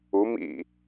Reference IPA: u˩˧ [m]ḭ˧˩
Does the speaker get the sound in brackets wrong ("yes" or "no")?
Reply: no